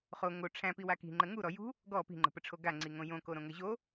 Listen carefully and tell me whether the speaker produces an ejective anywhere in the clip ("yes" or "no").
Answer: no